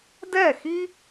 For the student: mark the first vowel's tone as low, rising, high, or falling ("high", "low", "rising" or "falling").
falling